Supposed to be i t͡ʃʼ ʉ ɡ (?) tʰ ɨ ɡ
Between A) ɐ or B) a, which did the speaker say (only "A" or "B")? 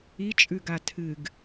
B